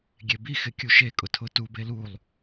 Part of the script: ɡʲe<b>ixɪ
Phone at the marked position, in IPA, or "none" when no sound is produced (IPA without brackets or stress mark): b